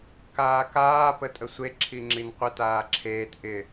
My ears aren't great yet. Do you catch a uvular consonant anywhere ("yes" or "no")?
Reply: yes